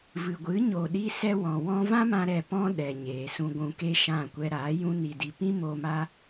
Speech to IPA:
v ɨ˨ ɡʷ ɨ˨˦ ɲ o˨ ɗ i˧ s ɛ˧ w ɔ̃˨ w ɔ̃˧ v ã˦ m ã˧ ɾ ɛ˨ p ɔ̃˦ ɗ ɛ˨ ɲ eː˨ s ũ˧ ɡʷ ũ˧ k e˦ ʃ ã˦˨ kʷ ɛ˧ ɾ aː˨˦ j ũ˦ n i˧ d i˧ p ĩ˦ m o˧ m a˦

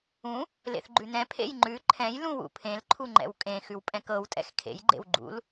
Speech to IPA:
ũ | l ḛ θ ɡ͡ǃ ʉ n ɛ̃ pʰ ḛ j ŋ͡ǃ ʉ ǃʰ ɛ̃ j l ũ w ṵ pʰ ẽ l ǃʰ u ŋ͡ǃ ɛ̰ w kʼ ẽ x ʉ w pʼ ɛ̃ k ɤ w tʼ ɛ̰ x kʰ ḛ j ɡ͡ǃ ḛ w ɡ͡ǃ ṵ l

